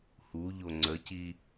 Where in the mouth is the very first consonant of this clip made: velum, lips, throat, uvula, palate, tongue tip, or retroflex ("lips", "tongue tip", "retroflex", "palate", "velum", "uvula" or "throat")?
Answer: throat